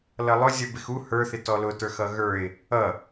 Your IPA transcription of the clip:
l ʌ lˠ ʊ zʲ ʌ b ɪ x u h ə˞ θ ɪ t ɔ l ʊ t ə˞ x ʌ ɣ ə˞ ɪ̯ | ʌ

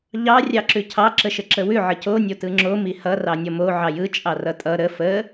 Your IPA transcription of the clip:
ʎ ɑ rʲ ɑ ǁ ʉ cʰ ɑ ǁ ə ʃ ə ǁ ə w ʉ ʕ ə c o nʲ o t ɯ ŋ͡ǁ o m i h ʌ r ɑ nʲ ʌ m o ʕ ɑ j ɯ t͡ʃʼ ɑ r ʌ tʼ ʌ ɾ ə f ə

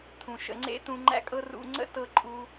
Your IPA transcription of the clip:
tʰ ũ˨ ʃ ə̰˧ ŋ͡ǀ ḛ˦ t ũ˧ ŋ͡ǃ æ̰˦ kʼ ɤ˦ r ṵ˧ ŋ͡ǀ ə̰˦ t ɤ˧ ǃʼ u˧

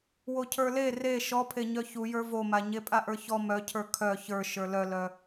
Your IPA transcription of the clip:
w o cʰ ə˞ l e r e ʃ ɔ pʰ e ɲ œ ç u j ə˞ v o m a ɲ e pʼ a ʔ ə˞ ç ɔ m œ cʰ ə˞ kʰ œ ç ə˞ ʃ ə˞ l œ l œ

